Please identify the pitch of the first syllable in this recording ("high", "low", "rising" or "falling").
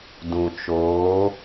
low